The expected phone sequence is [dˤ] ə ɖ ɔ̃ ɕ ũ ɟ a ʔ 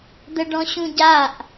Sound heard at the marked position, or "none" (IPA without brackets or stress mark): d̪